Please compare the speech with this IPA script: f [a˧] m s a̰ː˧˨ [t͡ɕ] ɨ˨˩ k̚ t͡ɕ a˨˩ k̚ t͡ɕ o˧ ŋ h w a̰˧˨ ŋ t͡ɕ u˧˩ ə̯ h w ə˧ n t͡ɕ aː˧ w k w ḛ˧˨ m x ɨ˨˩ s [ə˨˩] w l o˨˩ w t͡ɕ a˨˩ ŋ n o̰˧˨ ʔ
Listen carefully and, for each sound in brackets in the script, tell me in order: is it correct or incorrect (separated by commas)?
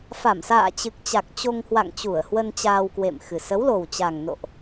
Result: incorrect, correct, incorrect